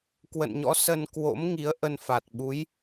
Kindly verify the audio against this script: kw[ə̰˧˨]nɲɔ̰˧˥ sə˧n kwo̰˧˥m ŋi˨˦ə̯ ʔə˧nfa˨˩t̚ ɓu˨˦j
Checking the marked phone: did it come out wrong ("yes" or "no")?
no